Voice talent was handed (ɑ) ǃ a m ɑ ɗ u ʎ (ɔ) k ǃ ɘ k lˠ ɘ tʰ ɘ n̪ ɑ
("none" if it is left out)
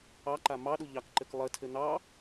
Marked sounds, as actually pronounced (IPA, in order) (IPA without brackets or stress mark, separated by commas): ɑ, ɑ